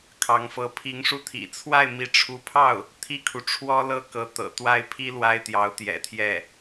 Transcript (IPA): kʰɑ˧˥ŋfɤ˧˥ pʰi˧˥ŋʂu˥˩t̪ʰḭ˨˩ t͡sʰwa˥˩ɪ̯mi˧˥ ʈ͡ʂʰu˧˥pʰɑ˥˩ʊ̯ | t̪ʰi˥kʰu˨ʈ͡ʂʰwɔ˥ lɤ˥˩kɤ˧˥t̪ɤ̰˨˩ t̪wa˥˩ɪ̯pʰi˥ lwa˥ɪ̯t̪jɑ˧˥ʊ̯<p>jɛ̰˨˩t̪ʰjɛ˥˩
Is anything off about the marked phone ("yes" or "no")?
yes